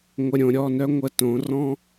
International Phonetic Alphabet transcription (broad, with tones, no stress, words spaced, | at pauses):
ŋʷə˨ɾʲõ˨ɾʲɔ˦˨nœ˦ ŋʷə˦tõ˨˦ rɔ̃˦